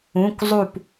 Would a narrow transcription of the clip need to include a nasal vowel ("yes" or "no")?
yes